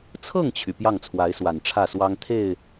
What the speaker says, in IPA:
t͡sʰ ɤ˥˩ ŋ t͡ɕʰ y˩ p j ɑ˥˩ ŋ t͡sʰ w a˧˥ ɪ̯ s w a˨˩ n ʈ͡ʂʰ ä˥˩ s w ɑ˥ ŋ t̪ʰ e˥˩ ɪ̯

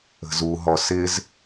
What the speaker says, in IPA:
ə̤ z u ɦ ɔ s ɪ z

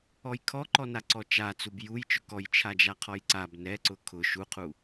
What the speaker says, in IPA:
ɔ j kʰ ɔ ǃ ɔ n a ǀ ɔ t͡ʃ a t͡s u b j u j t͡ʃ ʊ k ɔ j t͡ʃʰ a d͡ʒ a qʰ ɔ j ǀ a b n ɛ ǀ ʊ kʰ ʊ ʃ u qʰ u

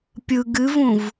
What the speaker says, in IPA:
pʲ ɯ ɡ ɨ v ũ v

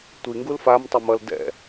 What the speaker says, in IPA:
tʷ i ŋ ɡ u l f a m tˤ e m ʌ l d ɛ̰

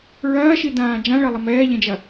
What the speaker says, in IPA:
ɹ ɐː ʃ i d ãː d͡ʒ ã ɭ ɐ lˠ ɐ m ɛː ʎ ẽ d͡ʒ ɐ

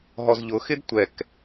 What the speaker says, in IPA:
ɦ ɔ z ʎ ʊ x ɪ d tʷ ɛ k

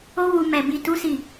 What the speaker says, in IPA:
o˦ w u˧ m ɛ˧ b i˧ t u˦ s i˦˨

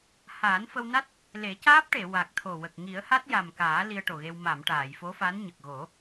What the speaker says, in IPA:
h aː˨˩˦ n f ə˧ w n a˦˥ t̚ | l e˨˩˦ c aː˦˥ p̚ ʈ e˨˩˨ w a˨˩ k̚ t̪ʰ o˨˩ w ə˨˩ k̚ ŋ i˨˩˦ ə̯ h a˦˥ t̚ j a˨˩ m k aː˨˩˦ l i˧ ə̯ ʈ o˨˩ ɣ e˧ w m a˨˩˨ m ʈ aː˨˩˨ j f o˧˥ f a˧˥ n ɲ ə˨˩ k̚ ɣ o˨˩˦

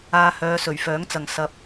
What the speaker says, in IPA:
aː˧ h œː˨˧ s ɵ˨˩ ɥ f œː˨˥ ŋ t͡s ɐ˨ ŋ s ɐ˧ p̚

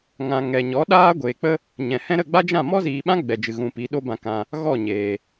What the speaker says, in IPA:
ŋ ã˨ ŋ ɛ˨ ɲ ɔ˨˦ ɗ aː˦ ɡʷ eː˨ k͡p ə˦ | ɲ ɛ̃˨ h ɛ̃˦ ɾ ə˦˨ ɡ͡b a˦ d͡ʒ ã˦˨ m ɔ˦ z iː˨ ɓ ã˦ ɡ͡b ɛ˨ d͡ʒ ɨ˨ ɣ ũ˨ p i˨˦ ɗ o˦ b ã˧ k ã˧ | ɣ ɔ˦˨ ɲ eː˨

